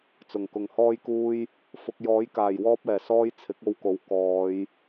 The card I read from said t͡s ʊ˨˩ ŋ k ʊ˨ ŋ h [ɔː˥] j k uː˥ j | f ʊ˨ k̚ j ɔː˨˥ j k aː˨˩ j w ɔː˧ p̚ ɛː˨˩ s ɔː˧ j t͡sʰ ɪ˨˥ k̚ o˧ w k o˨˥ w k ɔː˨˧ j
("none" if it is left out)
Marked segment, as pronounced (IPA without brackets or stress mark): ɔː˥